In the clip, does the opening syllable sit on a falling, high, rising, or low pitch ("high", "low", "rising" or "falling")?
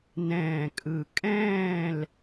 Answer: low